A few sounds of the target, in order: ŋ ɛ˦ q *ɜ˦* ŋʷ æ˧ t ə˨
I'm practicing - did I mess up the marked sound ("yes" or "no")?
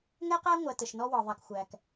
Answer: yes